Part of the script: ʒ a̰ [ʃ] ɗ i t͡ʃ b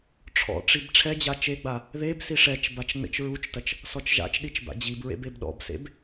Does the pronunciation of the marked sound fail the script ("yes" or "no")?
yes